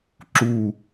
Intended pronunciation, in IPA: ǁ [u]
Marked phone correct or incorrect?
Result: correct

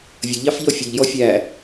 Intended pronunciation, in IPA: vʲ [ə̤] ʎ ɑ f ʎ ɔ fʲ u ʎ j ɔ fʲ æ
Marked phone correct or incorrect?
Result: incorrect: ə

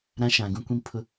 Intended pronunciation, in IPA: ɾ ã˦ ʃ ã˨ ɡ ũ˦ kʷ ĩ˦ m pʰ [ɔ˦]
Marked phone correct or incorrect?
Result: incorrect: ʊ˦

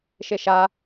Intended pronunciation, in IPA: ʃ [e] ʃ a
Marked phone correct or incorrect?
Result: correct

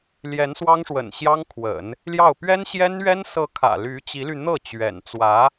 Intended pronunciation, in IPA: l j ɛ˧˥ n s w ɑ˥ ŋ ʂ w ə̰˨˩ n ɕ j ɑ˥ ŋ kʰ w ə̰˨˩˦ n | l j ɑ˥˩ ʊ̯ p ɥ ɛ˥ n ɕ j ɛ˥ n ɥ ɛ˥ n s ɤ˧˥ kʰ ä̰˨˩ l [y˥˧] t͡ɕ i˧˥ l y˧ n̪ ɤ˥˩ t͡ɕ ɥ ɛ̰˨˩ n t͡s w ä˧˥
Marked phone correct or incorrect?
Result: incorrect: y˧˥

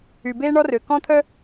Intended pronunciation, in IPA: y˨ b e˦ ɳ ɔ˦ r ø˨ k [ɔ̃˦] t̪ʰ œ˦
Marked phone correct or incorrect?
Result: correct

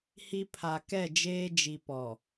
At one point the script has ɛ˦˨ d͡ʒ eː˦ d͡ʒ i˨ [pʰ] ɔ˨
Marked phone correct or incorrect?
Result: incorrect: p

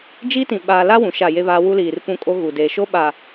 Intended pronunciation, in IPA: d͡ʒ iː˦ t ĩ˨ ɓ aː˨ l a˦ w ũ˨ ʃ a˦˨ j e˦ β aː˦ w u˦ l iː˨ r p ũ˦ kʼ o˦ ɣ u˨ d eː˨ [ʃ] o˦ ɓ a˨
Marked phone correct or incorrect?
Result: correct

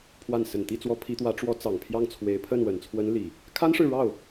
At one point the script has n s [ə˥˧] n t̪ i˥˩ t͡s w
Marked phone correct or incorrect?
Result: incorrect: ə˨˩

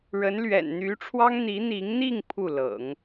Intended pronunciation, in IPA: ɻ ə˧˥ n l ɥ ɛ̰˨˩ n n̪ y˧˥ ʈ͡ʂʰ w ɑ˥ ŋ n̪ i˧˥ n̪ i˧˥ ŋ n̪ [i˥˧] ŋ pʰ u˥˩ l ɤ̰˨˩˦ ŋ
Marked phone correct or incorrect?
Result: correct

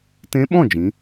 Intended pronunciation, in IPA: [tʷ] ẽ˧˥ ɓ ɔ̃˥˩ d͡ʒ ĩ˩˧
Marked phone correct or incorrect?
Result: incorrect: t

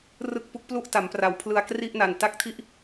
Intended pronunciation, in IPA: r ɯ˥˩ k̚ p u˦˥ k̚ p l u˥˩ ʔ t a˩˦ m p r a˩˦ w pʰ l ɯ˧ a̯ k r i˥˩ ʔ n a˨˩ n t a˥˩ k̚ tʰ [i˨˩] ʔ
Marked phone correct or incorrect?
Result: incorrect: i˥˩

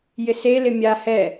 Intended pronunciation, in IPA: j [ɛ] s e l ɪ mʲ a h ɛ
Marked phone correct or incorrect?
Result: incorrect: ɪ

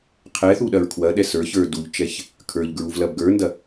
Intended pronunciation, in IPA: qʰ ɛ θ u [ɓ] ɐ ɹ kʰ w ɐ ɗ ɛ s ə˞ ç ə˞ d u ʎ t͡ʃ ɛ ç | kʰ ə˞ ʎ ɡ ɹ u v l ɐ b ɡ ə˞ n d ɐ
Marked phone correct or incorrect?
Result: incorrect: ɗ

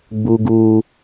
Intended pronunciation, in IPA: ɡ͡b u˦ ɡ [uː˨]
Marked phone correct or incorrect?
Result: incorrect: uː˦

